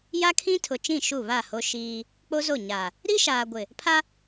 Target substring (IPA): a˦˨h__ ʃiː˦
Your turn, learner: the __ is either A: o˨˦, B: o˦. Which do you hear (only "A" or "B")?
B